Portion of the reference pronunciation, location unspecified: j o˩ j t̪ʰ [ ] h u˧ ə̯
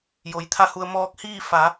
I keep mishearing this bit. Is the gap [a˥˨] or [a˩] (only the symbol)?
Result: a˥˨